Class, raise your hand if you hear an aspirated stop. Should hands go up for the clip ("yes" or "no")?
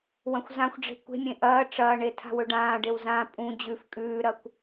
yes